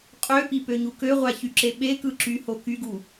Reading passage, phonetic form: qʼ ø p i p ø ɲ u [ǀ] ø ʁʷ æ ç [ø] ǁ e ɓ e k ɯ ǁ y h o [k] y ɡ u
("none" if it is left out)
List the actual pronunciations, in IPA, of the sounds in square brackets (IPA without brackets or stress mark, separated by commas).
k, y, k